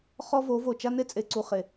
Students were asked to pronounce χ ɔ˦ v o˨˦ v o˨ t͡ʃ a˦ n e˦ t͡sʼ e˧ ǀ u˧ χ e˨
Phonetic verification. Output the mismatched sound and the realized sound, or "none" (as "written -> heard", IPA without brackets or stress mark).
none